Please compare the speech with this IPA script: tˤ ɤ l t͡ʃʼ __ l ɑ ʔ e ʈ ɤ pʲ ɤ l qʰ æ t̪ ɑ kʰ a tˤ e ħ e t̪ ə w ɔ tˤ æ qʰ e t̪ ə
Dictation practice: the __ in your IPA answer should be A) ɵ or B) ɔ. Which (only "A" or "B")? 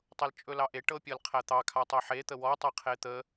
A